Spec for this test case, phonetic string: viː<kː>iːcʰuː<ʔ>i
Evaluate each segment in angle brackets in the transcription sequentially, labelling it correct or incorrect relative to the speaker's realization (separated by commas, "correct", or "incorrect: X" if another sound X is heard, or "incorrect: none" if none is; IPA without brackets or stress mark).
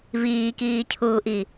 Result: incorrect: k, correct